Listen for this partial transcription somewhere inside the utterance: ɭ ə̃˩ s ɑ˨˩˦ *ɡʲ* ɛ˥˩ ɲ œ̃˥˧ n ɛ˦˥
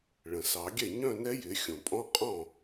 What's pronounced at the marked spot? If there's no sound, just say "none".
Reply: ɡʲ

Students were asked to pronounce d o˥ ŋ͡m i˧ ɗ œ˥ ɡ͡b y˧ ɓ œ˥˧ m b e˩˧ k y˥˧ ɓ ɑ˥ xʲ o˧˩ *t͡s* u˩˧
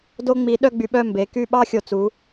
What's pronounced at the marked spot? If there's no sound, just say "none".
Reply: t͡s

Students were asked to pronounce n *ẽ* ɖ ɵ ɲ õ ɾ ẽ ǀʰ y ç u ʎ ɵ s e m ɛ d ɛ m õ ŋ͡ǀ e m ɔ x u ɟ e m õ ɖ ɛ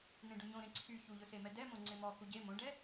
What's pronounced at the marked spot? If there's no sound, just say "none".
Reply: ẽ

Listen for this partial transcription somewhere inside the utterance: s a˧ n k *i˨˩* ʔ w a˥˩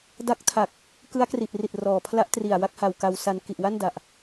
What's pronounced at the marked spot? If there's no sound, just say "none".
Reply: i˨˩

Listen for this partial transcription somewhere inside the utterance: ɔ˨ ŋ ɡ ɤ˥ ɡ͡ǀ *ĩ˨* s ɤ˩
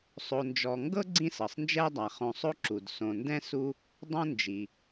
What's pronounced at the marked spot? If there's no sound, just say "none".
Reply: ĩ˦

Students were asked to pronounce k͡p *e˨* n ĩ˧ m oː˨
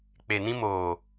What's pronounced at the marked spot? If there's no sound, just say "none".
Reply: e˨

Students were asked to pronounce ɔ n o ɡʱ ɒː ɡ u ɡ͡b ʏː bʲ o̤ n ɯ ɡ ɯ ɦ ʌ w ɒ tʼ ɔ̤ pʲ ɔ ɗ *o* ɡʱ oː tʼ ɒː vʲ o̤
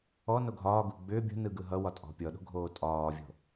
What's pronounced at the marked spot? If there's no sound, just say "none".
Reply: o̤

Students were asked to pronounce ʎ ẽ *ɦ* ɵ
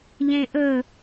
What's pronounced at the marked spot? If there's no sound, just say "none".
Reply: ʔ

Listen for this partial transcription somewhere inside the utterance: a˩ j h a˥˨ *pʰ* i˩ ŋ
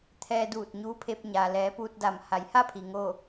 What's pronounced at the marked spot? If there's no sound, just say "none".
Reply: pʰ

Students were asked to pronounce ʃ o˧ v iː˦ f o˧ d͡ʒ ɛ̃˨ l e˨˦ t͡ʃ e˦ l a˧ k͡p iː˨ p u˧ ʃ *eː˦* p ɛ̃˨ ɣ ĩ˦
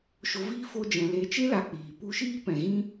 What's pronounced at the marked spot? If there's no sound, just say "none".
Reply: iː˦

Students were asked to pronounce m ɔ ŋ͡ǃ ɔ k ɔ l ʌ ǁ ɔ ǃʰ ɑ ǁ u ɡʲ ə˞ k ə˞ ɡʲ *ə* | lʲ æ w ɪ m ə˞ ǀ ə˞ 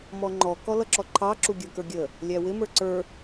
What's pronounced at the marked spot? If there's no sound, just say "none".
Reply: ə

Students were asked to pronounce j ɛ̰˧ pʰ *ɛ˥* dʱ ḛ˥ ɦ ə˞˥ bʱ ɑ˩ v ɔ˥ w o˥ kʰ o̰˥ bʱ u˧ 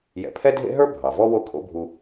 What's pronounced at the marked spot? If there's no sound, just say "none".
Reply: ɛ˥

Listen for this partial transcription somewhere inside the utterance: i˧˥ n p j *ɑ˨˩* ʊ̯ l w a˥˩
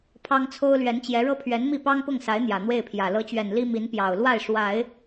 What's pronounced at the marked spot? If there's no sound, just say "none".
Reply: ɑ˨˩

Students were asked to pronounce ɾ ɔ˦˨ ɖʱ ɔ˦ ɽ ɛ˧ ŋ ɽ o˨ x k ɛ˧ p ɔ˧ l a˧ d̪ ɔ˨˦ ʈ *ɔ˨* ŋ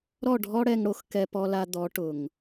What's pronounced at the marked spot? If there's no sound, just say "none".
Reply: ʊ˨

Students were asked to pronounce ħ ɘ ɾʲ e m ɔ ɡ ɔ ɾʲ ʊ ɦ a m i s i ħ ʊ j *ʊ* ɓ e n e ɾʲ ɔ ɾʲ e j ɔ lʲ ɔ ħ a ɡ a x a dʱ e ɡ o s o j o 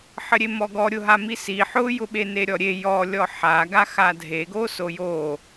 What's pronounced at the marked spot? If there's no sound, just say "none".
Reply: ʊ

